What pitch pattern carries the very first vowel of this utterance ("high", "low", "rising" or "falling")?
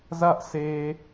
high